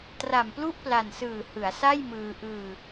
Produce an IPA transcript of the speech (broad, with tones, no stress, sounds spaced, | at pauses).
t r a˨˩ m p l u˥˩ ʔ p l a˨˩ n s ɯː˨˩ h ɯ˩˦ a̯ s a˥˩ j m ɯː˧ ʔ ɯː˧